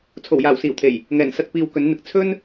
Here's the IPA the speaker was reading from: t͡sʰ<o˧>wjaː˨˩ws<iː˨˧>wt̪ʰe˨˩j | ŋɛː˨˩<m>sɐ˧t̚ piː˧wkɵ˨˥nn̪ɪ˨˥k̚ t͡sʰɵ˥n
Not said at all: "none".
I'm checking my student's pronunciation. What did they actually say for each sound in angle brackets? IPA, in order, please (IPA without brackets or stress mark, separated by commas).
o˨˩, iː˨˩, n